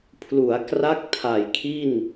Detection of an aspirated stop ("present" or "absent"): present